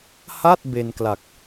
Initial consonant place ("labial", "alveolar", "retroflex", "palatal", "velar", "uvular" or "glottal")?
glottal